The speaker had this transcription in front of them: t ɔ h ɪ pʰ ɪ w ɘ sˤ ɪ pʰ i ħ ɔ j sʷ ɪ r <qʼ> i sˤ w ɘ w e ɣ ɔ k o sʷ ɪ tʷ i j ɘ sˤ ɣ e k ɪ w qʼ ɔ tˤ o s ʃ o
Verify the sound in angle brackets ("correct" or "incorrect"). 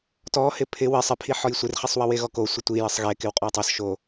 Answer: incorrect